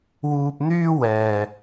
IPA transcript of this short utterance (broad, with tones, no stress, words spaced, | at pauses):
wuː˧p̚n̪yː˥wɛː˨